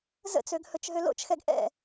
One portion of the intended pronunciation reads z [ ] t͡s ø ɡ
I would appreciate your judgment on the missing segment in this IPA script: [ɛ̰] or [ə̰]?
ə̰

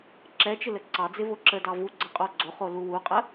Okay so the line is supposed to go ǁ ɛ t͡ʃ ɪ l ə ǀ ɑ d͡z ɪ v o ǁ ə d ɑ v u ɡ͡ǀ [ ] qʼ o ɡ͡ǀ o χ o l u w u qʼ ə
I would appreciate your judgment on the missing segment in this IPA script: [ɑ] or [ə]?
ə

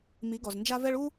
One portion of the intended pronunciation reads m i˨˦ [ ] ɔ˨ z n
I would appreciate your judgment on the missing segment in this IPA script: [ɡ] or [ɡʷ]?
ɡ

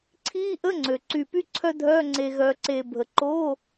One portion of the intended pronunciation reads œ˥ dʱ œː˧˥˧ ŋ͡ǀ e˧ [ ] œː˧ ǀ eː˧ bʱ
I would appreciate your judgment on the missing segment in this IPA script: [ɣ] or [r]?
ɣ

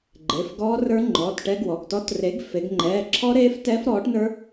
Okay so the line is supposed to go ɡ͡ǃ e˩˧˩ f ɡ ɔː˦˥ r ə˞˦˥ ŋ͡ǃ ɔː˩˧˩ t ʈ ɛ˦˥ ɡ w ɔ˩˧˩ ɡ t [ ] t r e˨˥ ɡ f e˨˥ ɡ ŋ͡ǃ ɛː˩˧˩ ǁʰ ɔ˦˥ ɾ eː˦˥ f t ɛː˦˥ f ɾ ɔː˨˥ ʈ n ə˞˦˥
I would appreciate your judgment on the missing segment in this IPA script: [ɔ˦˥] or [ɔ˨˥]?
ɔ˦˥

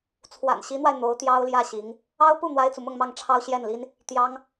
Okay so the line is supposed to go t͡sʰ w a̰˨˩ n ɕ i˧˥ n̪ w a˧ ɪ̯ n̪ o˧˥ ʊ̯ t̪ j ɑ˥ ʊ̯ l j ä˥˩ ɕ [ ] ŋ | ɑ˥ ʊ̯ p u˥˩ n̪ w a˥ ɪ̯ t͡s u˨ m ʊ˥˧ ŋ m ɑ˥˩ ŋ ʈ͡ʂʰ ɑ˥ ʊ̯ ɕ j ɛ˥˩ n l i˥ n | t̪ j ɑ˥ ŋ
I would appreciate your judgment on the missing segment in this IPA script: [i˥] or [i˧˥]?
i˧˥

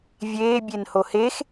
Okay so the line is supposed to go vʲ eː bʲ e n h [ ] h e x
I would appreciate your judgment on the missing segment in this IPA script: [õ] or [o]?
o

